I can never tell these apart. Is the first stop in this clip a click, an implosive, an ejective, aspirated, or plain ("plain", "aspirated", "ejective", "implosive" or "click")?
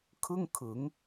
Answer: aspirated